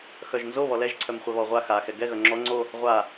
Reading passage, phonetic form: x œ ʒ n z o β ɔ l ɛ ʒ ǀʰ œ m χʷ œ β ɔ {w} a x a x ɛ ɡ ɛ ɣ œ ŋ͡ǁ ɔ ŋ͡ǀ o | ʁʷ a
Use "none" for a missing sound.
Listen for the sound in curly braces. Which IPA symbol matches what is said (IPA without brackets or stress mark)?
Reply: ʁʷ